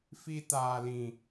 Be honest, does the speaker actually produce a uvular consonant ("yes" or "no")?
no